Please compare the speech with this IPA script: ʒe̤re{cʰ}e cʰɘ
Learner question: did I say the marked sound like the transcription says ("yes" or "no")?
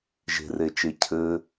no